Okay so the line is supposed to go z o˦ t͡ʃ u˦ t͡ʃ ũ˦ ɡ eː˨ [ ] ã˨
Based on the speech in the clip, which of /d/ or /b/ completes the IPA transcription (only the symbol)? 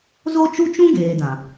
d